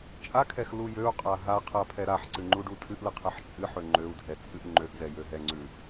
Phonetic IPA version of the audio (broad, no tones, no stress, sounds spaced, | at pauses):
t͡ʃʼ a kʰ ɛ x l u j ø u̯ qʼ a ɦ a qʰ a pʰ ɛ ɾ a ħ ǀ ɨ ŋ͡ǃ u ɖ u tʰ ɨ ʔ l ɨ qʰ ə ħ t͡ʃʼ ɨ ħ ø ŋ͡ǃ ø u̯ dʱ ɛ t͡sʼ ɨ ʔ ŋ͡ǃ ø ʔ z ɛ j ø ɦ ɛ ŋ͡ǀ ʉ